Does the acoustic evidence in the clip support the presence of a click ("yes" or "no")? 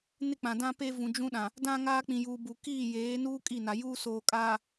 no